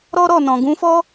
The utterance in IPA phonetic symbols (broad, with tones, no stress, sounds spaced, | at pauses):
ɾ ɔ˦ ɾ ɔ˦˨ n ɔ̃˨ ɡ ũ˨˦ f ɔ˦